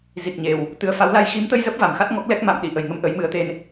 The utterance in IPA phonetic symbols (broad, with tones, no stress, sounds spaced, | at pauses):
z i˨˩ k̚ ɲ e˨˩ w | t̪ ɨ˨˩ ə̯ f a˨˦ w l a˧ j x i˨˦ m t̪ ə˧ j z ə˦˥ p̚ v a˨˩ m x a˦˥ t̚ ŋ ɔ˦˥ k̚ l ɛ˦˥ k̚ m a̰˧˨ m ɗ i˧˩ ʔ ə˨˩ j ŋ ə˨˦ m ʔ ə˨˦ j m ɨ˨˦ ə̯ t̪ e˧ n